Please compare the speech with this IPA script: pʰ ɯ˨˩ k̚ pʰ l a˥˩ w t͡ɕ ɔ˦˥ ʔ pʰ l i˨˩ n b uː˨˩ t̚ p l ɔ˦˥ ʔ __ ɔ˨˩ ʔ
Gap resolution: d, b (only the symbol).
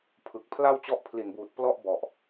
b